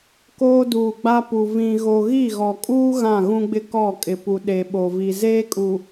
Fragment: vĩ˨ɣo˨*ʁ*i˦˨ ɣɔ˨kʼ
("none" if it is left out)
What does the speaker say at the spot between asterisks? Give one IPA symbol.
ɣ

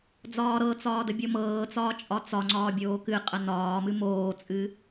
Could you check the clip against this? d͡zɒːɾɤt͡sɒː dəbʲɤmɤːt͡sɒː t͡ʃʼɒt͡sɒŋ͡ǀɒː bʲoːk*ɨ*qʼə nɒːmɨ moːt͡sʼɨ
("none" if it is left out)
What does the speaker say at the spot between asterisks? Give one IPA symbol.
ɨ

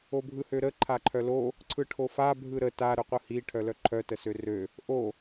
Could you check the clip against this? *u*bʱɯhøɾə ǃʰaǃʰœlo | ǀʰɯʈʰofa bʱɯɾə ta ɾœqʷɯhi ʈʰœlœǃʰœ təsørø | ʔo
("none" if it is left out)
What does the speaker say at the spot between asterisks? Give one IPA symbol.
o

